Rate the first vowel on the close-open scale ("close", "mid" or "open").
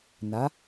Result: open